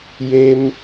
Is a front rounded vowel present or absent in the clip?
absent